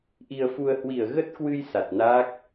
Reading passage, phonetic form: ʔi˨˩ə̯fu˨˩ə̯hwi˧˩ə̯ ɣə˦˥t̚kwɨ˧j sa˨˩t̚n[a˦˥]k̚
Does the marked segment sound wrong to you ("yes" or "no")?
yes